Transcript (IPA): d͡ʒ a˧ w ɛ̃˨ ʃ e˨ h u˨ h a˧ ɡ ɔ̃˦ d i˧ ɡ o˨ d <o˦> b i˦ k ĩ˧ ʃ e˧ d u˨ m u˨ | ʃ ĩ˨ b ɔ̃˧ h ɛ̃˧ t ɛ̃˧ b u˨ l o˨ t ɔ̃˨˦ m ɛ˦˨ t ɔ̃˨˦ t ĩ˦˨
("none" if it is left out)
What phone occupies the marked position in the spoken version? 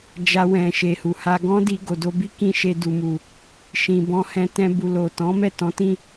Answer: o˧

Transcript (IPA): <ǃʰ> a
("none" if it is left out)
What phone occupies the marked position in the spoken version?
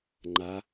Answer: ŋ͡ǃ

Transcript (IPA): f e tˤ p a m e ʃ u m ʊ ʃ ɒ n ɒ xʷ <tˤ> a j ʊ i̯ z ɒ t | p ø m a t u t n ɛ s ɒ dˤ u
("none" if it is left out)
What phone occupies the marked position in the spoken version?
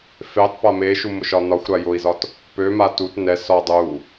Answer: ɾ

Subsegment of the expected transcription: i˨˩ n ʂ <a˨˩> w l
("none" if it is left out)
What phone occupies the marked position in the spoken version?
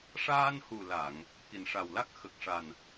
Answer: a˨˩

